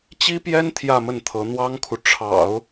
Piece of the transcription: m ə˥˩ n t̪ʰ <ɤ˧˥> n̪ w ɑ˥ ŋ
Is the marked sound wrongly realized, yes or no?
no